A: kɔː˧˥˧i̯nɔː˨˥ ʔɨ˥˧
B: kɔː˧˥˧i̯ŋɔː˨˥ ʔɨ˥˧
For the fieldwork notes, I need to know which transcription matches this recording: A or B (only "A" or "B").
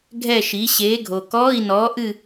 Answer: A